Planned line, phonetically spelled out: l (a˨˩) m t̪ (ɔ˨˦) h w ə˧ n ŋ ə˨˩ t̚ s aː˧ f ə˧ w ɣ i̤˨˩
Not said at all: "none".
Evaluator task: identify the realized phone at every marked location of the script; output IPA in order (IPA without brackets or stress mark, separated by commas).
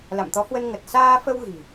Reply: a̰˧˨, ɔ˨˦